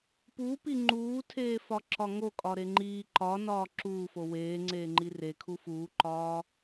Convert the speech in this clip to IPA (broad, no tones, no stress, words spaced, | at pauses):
pupi ŋ͡ǃuːtʰeːfɒǁɒ ŋokʼɒɾe ŋ͡ǃiː ǃɒnɒː ǁuːfo weːŋ͡ǀeːŋ͡ǃi rekʰu fuːǃɒː